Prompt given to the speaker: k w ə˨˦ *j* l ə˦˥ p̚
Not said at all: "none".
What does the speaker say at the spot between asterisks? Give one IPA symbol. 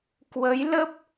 j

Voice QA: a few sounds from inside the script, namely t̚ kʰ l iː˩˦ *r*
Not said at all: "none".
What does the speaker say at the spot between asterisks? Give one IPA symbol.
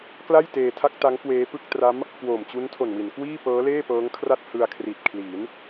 n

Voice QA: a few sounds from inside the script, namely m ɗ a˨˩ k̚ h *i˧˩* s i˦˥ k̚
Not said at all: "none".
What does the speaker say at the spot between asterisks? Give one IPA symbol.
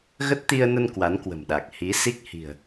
i˨˦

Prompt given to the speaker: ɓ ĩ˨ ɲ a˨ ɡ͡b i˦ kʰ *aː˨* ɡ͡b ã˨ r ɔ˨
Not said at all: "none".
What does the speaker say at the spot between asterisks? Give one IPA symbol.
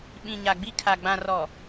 a˨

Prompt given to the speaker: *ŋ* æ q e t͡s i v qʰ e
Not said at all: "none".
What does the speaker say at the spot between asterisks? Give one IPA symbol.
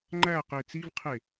ŋ͡ǃ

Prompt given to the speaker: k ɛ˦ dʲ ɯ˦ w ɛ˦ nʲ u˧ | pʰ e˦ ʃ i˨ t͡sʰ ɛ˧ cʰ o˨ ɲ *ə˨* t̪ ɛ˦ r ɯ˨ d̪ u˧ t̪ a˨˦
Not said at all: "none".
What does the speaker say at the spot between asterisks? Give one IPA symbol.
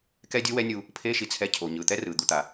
ɯ˨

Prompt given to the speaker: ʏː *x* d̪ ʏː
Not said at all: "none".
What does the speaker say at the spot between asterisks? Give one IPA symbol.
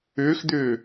x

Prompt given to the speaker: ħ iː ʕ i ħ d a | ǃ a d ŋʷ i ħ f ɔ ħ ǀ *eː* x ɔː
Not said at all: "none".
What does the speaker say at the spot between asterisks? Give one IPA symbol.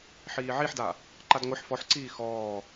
iː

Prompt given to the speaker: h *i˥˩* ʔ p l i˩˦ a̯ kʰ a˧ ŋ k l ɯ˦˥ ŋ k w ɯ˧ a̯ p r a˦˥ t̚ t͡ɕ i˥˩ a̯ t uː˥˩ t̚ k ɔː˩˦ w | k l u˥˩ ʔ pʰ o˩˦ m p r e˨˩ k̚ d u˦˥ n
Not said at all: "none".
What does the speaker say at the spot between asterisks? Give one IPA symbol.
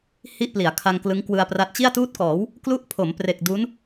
i˥˩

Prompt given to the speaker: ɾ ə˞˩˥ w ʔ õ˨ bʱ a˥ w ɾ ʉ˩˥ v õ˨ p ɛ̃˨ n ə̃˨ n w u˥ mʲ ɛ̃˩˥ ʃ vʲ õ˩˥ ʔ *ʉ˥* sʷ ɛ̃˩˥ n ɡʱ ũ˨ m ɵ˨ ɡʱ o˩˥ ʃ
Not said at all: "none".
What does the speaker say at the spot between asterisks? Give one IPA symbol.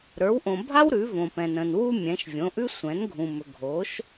ʉ˥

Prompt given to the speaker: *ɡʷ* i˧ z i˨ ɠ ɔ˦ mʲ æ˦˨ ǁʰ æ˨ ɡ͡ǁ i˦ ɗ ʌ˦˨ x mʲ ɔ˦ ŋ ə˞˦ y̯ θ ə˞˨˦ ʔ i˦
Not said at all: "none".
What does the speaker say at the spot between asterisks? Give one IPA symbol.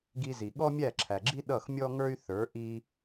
ɡ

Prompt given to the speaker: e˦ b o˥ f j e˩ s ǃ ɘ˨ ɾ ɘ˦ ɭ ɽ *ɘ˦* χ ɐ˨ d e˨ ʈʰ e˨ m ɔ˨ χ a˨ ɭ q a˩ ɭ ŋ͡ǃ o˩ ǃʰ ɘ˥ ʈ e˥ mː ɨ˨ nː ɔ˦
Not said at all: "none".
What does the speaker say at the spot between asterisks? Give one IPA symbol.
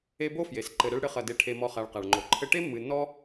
ɘ˦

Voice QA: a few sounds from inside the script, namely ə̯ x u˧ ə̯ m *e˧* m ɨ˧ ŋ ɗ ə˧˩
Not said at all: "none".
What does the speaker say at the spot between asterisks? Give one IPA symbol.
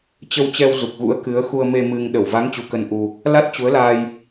e˧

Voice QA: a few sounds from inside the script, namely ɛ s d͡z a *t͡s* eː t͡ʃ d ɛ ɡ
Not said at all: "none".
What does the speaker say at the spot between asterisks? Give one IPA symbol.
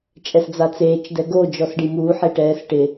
t͡s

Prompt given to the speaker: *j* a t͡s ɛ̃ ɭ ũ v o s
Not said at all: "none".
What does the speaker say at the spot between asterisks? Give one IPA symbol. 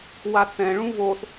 w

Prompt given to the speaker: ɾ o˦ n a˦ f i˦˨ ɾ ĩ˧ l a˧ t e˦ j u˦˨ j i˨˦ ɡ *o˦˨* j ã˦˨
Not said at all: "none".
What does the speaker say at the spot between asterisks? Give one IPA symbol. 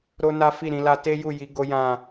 o˦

